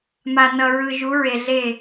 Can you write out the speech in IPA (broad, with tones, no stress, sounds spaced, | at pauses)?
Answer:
m a˨ n ʌ˨ ɹ ɯ˨ ʒ u˨˦ ɹ e˨ ɮ e˦˨